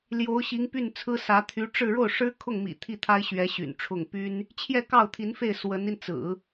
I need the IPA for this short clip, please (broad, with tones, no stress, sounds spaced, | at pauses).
l j o˧˥ ʊ̯ ɕ i˧˥ ŋ p y˥˩ n t͡sʰ ɹ̩˥ s ä˧˥ t̪ʰ y˧˥ ʈ͡ʂ ɻ̩˥˧ ɻ o˥˩ ʊ̯ ʂ ɻ̩˥ kʰ ʊ˥˩ ŋ m ḭ˨˩ t̪ʰ i˥˩ t̪ʰ a˥ ɪ̯ ɕ ɥ ɛ˧˥ ɕ y̰˨˩ n ʈ͡ʂʰ ʊ˥˩ ŋ p y˥ n | t͡ɕʰ j ɛ˥˧ k ɑ˥˩ ʊ̯ t̪ʰ i˧˥ n f e˥˩ ɪ̯ s w ə˧˥ n i˧ n t͡s ɹ̩˨˩˦